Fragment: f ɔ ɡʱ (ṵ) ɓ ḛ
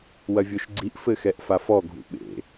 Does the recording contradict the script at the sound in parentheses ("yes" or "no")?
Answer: no